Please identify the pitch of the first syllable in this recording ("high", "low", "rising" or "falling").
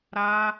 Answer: high